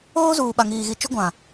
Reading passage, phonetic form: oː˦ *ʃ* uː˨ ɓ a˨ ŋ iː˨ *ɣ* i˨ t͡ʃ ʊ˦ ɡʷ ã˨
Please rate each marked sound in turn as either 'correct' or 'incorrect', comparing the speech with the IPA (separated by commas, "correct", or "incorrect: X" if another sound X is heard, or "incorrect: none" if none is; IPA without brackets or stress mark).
incorrect: z, correct